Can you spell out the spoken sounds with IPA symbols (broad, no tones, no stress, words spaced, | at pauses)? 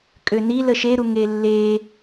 kʼøni ləʃeɾu ŋelːe